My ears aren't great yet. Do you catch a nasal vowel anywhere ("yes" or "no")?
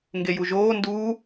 no